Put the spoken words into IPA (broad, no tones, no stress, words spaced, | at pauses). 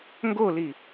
ŋɡoli